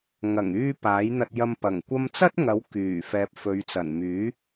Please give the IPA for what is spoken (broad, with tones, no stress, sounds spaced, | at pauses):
ŋ ɐ˨˩ ŋ yː˧ p aː˨˥ j n̪ ɐ˧ t̚ j ɐ˧ m p ɐ˨˩ ŋ kʷ ɐ˧ m t͡s ɐ˥ t̚ ŋ ɐ˨˥ w k yː˨˩ f ɛː˨ p̚ f ɵ˨˧ ɥ t͡s ɐ˨˩ n m yː˨˥